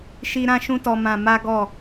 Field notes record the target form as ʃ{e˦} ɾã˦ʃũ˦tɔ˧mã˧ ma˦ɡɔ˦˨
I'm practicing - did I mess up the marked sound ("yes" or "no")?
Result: yes